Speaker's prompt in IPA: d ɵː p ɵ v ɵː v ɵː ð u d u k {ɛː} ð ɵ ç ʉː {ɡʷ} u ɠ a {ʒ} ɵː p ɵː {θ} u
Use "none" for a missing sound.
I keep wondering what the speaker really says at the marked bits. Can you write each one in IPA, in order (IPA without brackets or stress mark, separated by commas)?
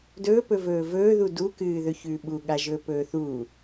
ɨː, ɓ, ʒ, θ